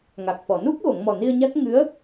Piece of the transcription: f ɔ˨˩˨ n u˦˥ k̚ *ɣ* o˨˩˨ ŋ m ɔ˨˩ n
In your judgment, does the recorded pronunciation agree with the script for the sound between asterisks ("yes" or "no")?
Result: yes